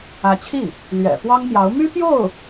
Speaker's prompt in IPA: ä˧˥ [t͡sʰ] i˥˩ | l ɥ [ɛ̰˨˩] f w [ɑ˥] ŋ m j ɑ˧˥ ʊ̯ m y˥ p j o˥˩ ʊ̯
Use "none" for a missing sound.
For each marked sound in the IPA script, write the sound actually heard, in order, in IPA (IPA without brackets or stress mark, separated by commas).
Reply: t͡ɕʰ, ɛ̰˨˩, ɑ˥